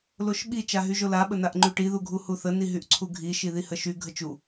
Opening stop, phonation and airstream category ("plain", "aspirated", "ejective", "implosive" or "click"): implosive